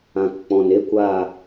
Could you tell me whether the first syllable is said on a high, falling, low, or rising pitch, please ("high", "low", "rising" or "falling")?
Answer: low